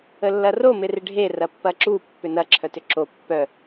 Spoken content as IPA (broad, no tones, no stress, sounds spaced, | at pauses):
ə lː ɐ r o m ɪ r ɪ ɖʱ e r ɐ pː ɐ ǁ u pː ʏ n ɐ ǁʰ œ t ʏ ǁ o pː œ